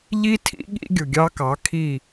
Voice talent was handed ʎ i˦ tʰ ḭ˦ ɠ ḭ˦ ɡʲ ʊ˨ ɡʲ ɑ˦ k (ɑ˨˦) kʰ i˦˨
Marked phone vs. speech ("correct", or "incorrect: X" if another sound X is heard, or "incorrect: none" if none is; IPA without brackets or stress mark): correct